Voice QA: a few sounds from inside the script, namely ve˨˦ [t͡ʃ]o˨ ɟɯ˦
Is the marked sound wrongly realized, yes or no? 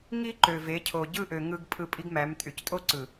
yes